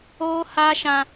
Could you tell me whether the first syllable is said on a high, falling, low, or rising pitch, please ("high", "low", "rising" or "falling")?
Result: high